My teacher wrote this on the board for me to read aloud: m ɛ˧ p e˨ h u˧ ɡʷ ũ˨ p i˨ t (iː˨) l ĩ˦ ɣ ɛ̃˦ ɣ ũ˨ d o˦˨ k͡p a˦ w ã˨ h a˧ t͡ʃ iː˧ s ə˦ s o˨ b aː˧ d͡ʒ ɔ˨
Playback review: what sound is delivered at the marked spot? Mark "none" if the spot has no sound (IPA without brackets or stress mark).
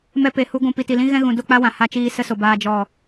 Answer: i˨